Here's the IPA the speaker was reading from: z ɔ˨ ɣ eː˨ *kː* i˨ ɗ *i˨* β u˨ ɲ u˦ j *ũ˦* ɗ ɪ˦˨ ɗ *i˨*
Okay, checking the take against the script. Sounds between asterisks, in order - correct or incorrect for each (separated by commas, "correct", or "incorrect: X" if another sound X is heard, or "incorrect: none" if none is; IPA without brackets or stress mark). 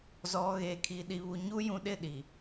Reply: incorrect: kʰ, correct, incorrect: ũ˨, correct